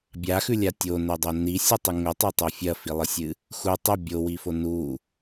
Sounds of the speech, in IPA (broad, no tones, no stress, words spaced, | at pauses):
bʲaxʉlʲa tʲonɵdˤo nisʲɨtˤɨ ŋɵtˤɵtˤɐ fʲɐfilˠɨsʲɨ | xu tˤɐ bʲowifo nu